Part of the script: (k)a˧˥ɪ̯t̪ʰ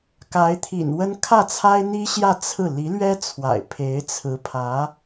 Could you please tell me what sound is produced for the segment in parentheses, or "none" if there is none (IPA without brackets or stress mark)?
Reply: k